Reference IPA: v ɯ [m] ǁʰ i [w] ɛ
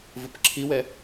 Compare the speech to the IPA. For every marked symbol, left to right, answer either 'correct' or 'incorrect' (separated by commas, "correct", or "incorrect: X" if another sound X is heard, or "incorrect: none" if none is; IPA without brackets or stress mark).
incorrect: p, correct